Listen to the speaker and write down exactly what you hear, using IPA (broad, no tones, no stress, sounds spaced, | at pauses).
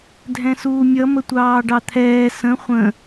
dʱ ɛ̃ s uː mʲ ʌ m ə tʷ ɑː ɖ ɑ t̪ʰ ɛː s ə̃ χʷ ə̃